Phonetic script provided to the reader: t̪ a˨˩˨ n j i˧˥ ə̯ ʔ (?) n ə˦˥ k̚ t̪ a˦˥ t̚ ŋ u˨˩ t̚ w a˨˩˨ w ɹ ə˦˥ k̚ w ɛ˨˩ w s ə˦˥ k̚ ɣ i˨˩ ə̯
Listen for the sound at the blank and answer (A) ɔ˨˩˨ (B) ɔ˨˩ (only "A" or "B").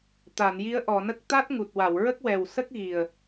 A